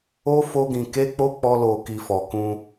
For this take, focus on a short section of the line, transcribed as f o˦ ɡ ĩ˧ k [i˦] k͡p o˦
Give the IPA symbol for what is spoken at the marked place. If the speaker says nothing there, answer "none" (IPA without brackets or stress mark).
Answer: e˦